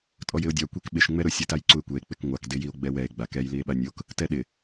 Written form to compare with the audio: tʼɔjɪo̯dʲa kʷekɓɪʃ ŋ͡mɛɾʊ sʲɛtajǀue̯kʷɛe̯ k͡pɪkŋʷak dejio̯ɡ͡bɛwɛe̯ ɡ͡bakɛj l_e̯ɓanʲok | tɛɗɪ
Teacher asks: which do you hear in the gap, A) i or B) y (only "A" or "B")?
A